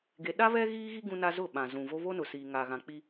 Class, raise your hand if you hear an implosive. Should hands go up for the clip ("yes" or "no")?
yes